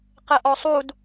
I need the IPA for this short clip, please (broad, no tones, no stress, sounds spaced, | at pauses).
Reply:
q ɛ ʔ ɔ sˤ u d